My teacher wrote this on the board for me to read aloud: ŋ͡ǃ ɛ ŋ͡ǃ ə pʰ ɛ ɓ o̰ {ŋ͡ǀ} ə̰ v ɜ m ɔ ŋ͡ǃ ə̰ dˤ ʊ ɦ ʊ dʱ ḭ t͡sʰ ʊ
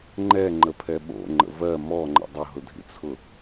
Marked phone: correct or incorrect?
incorrect